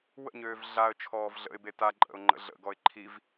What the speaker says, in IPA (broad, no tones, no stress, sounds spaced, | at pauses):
w ə̰ ɲ øː v ɮ a ə̯ t͡ʃʰ ɔː v ɮ ə̰ ɪ̯ b e t a ǃʼ ə̰ ʊ̯ ŋ͡ǃ ə̰ ɮ ə̰ ɡ ɔ ɪ̯ ǃʰ i v